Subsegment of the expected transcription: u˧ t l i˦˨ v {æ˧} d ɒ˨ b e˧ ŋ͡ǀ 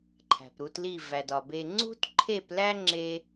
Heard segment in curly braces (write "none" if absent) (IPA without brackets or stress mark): æ˨